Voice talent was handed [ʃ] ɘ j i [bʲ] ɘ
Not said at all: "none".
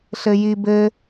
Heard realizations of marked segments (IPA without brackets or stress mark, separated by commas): ɬ, b